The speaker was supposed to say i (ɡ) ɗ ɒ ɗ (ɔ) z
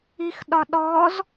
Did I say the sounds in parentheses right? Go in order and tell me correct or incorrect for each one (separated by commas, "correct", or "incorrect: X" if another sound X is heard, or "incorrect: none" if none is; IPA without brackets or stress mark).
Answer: incorrect: x, correct